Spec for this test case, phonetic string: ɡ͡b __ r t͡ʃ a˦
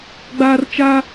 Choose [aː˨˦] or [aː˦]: aː˦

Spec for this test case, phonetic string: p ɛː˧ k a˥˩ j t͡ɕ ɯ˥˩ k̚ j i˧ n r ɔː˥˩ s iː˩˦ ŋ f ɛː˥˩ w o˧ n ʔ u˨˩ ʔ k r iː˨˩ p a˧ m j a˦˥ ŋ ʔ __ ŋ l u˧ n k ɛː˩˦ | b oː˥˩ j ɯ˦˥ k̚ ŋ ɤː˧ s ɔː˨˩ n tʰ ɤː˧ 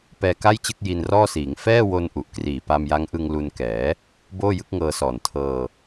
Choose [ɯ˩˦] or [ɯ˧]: ɯ˧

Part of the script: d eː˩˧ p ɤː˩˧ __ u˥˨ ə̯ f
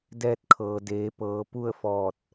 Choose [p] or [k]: p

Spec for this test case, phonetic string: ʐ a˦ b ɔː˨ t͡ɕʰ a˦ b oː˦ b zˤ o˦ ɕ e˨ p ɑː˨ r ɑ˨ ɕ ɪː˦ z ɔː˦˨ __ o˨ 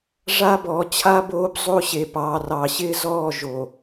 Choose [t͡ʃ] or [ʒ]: ʒ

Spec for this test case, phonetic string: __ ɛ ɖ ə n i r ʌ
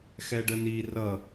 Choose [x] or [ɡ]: x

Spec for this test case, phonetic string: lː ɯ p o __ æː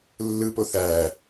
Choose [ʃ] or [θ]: θ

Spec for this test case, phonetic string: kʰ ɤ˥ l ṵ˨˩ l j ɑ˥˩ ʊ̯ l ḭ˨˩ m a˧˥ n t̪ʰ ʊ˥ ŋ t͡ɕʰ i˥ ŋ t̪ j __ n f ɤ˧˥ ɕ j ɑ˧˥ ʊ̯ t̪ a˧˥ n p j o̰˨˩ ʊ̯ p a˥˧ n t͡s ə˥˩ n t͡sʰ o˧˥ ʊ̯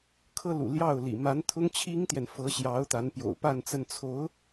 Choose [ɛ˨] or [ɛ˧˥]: ɛ˨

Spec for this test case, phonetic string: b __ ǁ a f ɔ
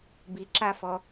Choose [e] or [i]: i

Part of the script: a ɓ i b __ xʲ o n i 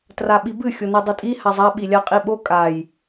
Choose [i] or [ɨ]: ɨ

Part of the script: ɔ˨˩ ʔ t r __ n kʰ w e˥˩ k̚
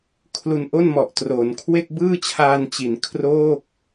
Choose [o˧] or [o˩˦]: o˩˦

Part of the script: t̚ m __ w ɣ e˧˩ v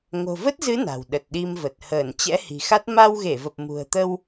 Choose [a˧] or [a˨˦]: a˧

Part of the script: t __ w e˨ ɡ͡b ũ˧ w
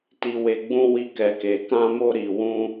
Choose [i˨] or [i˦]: i˨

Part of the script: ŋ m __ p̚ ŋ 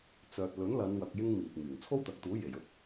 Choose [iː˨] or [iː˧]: iː˨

